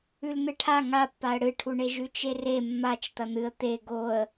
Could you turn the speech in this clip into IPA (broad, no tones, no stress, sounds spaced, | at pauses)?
ʉ l n̪ ɨ ʈʰ a ŋ a pː a ə̯ ɽ ɨ ʈʰ u ɳ e ʒ ʉ t͡ʃ e r e mː a t͡ʃ t̪ ɐ n̪ ɨ ə̯ t̪ e ɡ o ə̯